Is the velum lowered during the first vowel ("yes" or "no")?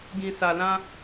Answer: yes